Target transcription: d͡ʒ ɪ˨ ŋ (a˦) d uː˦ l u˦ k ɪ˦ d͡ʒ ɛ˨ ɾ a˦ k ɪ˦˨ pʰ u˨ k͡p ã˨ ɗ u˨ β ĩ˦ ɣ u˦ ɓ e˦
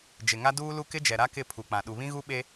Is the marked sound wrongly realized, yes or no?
no